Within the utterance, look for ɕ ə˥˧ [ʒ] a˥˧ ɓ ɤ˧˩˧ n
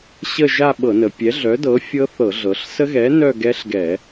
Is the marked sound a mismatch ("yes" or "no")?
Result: no